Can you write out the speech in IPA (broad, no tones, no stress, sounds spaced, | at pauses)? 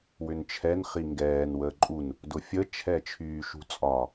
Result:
w ʏ n t͡ʃʰ ɛ n χ i ŋ ɡ ɛː n w əː ǃʼ u n | d ʊ fʲ ə t͡ʃʰ ɛ t͡ʃʰ yː ʃ ṳ t͡sʼ ɒ